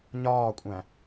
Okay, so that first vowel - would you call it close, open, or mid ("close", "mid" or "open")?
open